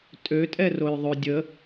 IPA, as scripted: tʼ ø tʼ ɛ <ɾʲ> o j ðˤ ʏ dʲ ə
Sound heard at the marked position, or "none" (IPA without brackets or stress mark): r